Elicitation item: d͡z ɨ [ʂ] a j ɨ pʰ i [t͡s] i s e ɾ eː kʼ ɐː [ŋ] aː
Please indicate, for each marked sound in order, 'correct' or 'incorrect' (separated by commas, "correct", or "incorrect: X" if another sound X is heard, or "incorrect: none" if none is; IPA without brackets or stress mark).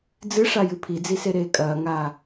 correct, incorrect: d͡z, correct